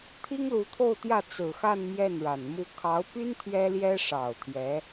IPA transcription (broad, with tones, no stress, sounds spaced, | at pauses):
t̪ʰ i˥ ŋ l u˧˥ t̪ʰ o˥˧ ʊ̯ t̪ j ä˥˩ t͡s ɹ̩˨˩ x a˥˧ n m j ɛ˥˩ n ɻ a˨˩ n m u˥˩ kʰ ɑ˧˥ ʊ̯ p y˥ n t̪ʰ ɥ ɛ˥ l j ɛ˥ ʂ ɑ˨˩ ʊ̯ t̪ʰ j ɛ˧˥